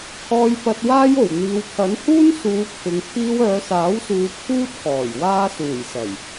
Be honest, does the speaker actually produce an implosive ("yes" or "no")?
no